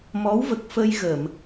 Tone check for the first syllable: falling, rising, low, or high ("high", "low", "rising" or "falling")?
rising